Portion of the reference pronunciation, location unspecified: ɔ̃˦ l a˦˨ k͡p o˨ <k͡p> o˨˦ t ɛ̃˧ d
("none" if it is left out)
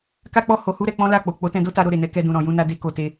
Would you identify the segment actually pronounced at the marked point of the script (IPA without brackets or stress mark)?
k͡p